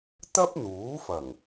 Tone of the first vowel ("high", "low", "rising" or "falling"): high